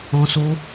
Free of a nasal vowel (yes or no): no